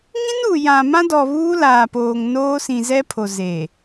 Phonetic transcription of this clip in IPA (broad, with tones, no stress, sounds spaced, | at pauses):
ŋ ĩ˦ n u˨ j ã˨ m ã˦ d ɔ˨ β uː˦ l aː˨ p oː˨ ŋ n oː˦ s ĩ˨ z ɛ˦ pʰ o˨ z e˨